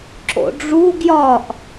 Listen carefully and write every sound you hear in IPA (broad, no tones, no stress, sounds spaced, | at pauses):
ǁ o̰ ɖ͡ʐ u ɡ j ɒ ʔ